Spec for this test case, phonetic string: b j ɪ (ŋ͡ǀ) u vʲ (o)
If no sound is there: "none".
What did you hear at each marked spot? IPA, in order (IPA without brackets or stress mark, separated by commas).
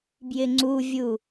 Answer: ŋ͡ǀ, u